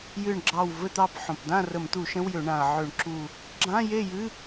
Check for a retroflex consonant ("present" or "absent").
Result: present